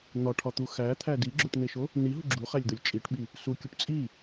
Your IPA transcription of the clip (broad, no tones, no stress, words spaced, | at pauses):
n̪ɒʈʰɒt̪u xæt̪ʰæ diɡ͡ǁoʈn̪eʃo | niɦu ɡ͡ǁuχælʲd̪olʲ t͡ʃʼiʈɓi | sukʲuʈ t͡sʼi